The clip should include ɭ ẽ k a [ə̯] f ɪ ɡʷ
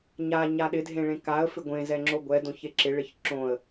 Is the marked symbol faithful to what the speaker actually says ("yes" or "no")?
yes